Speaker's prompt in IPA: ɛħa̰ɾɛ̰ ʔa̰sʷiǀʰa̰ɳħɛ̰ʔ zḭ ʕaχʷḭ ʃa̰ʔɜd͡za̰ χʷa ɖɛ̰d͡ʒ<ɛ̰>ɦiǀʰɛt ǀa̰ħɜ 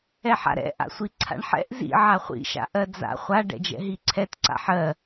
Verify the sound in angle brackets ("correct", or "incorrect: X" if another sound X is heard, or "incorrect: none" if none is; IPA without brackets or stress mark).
correct